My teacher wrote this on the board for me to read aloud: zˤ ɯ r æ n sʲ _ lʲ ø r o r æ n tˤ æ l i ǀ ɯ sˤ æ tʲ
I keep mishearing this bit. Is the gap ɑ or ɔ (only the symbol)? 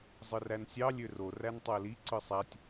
ɑ